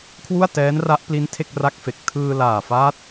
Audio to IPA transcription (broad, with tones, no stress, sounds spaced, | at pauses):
kʰ w u˥˩ a̯ t ɛː˦˥ n r a˦˥ ʔ p l i˦˥ n tʰ e˥˩ k̚ r a˥˩ k̚ f e˨˩ k̚ tʰ ɯː˧ l aː˨˩ f aː˦˥ t̚